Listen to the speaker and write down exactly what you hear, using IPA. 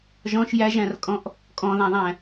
ʒɔ̃ʃ jæʒæ̃rkʼɔ̃ʔ | kʼɔ̃ðæ̃ðˤæ̃

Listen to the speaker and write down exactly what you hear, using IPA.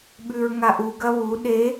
ɓʉɹŋaʔuɡɐ βu ɗe

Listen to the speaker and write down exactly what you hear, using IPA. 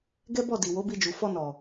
ɡɛ˦bɔ˦˨ di˨wo˨˦bi˧d͡ʒu˨ fɔ˧ nɔ˨

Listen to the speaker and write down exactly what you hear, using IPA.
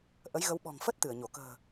ʔə˨˦jɣə˨˦w ɓɔ̤˨˩ŋfə˦˥t̚ t̪ɨ˧˩ə̯ɲo˧˩ kə̤ː˨˩

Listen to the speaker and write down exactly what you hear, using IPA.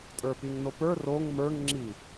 tʼə˞piŋnopə˞ roŋ mə˞ŋ ŋ͡ǁi

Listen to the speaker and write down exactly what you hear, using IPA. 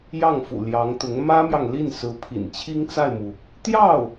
jɑ˥˩ŋfṵ˨˩ ljɑ˧˥ŋt̪ʊ˧˥ŋ mä˥mjɑ˨ŋli˥˩n sɹ̩˧˥pʰḭ˨˩n t͡ɕʰi˥ŋt͡sa˥˩ɪ̯mu˩ | t̪jɑ˥˩ʊ̯

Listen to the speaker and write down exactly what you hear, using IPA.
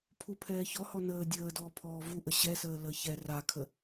pʰupʰɛːçɔhɔ nəː dʲəː dɔːpʰɔːvuʔə ɕɛsəː ləːçɛ rakʰə

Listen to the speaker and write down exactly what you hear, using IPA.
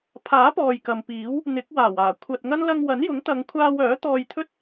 pʰaː˨˥pɔː˨j kɐ˨mpiː˨˥w | n̪ɪ˨˥k̚ waː˨˩waː˨˩ kʷʰɐ˨t̚ ŋɐ˥n lɐ˧ŋwɐ˨˥njʊ˨˥ŋt̪ɐ˨˧ŋ kʷʰaː˧wœː˨˥ t̪ɔː˧jt̪ʰɵ˥t̚

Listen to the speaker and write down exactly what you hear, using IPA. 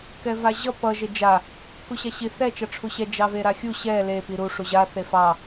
kɛvaʑʌ pʌ ʒed͡ʒa | kuɕaɕi θɛ t͡ʃʌʈ͡ʂʰuɕɛ d͡ʒɑveɾaxʲu ɕɛ le piɾu ʂuʑa θefɑ

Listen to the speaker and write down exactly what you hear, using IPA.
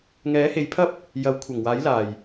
ŋɛː˨˥he˨˧jpʰɐ˥p̚ | jɐ˨˥wkʷʰɐ˨˩ŋwaː˨˥j laː˨˩j

